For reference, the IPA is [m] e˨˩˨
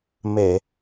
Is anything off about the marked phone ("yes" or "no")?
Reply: no